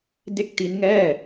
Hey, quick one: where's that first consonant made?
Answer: tongue tip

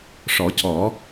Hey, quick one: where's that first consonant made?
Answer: retroflex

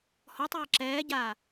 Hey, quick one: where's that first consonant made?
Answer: throat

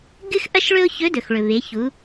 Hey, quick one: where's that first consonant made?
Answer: velum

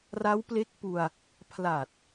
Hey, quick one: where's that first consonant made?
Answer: tongue tip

